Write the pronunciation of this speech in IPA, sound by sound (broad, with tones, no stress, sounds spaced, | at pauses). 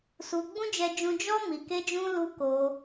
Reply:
s u˧ ɡ͡b ũ˦ d͡ʒ ɛ˦ d͡ʒ ũ˦ d͡ʒ ɔ˦ m i˧ k e˦ d͡ʒ ũ˦ l u˦ k o˧